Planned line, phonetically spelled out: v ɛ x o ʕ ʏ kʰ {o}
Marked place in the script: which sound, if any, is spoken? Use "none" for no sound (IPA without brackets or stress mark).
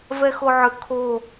o